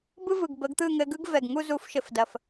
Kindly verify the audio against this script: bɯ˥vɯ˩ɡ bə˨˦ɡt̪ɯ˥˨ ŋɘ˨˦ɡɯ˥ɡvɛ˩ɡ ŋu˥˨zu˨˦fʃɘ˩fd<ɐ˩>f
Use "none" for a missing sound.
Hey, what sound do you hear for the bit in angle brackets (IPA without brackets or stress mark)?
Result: ɐ˩